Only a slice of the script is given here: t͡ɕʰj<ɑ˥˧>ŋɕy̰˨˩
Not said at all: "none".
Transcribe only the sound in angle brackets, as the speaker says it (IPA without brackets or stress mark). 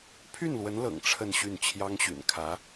ɑ˥